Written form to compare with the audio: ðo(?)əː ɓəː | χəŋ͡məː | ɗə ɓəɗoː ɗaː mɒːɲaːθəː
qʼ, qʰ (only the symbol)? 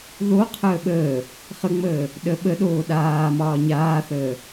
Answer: qʰ